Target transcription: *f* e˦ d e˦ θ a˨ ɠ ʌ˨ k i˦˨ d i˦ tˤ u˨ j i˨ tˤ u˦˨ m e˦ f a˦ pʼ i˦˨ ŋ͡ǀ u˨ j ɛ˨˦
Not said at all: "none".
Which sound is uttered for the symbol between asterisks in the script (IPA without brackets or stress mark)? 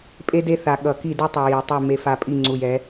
pʼ